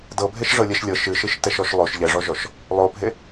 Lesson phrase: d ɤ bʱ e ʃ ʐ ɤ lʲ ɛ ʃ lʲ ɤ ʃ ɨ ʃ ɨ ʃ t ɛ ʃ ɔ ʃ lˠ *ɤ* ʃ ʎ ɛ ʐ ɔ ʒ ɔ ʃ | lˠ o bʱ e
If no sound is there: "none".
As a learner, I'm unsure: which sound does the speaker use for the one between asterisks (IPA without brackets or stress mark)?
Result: o